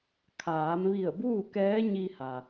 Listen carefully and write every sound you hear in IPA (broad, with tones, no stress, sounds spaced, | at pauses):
kʰ aː˩˧ m ʋ i˧˩ ə̯ b uː˥˨ k ɛː˧˥ ɲ i˧ h a˩